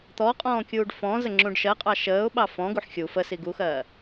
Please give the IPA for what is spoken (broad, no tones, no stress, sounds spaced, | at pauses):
t̪ ɔ qʼ ɔ̃ː kʲ uː ɖ f ɔ̃ z ə ŋ͡ǁ ũ ɖ ʃ ɜ qʼ ɑ ʃ əː ʊ̯ ɓ ɑ f ɔ̃ ɡ u ħ xʲ u f ə s i ɡ u x ɜː